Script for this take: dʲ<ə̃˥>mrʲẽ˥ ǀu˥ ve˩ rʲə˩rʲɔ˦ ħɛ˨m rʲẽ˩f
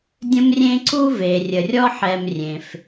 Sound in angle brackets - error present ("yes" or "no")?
no